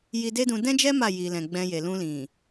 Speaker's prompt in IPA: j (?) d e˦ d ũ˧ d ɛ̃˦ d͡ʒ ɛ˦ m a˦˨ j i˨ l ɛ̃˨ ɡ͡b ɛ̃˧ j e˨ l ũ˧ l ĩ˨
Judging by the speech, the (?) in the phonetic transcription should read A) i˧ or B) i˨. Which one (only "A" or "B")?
A